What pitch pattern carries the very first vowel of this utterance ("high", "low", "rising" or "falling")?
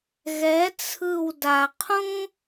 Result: rising